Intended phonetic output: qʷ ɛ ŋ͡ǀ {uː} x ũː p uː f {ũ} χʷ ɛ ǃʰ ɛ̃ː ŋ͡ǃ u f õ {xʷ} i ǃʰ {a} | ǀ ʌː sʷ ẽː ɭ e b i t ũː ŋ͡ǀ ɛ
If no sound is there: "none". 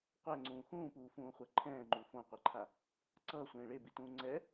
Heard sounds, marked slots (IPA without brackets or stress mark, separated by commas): ũː, ũː, qʷ, a